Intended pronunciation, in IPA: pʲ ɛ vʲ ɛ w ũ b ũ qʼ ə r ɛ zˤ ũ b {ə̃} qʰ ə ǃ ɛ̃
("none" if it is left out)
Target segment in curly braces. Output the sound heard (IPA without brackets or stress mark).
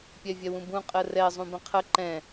ə̃